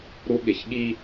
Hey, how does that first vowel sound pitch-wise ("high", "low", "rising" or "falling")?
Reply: high